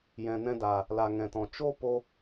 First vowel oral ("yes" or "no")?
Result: no